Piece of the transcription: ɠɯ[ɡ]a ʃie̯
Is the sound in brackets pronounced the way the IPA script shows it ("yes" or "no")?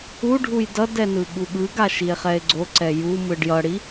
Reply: yes